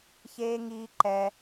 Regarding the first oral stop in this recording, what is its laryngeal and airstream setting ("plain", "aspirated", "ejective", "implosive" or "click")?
click